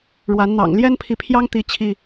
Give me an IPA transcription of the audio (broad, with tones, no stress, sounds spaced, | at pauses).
ɻ w a˨˦ n n̪ ɑ̰˨˩ ŋ l j ɛ˦ n pʰ i˨ pʰ j ɑ˦ ŋ t̪ i˦ t͡ɕʰ i˥˨